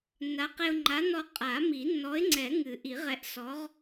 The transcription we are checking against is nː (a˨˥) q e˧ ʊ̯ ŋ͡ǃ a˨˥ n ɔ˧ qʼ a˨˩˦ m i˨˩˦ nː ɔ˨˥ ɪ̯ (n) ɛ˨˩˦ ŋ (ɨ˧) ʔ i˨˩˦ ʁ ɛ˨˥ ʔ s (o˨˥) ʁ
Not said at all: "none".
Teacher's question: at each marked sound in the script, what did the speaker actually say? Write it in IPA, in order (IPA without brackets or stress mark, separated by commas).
a˨˥, ŋ͡ǀ, ɨ˨˩˦, ɔ˨˥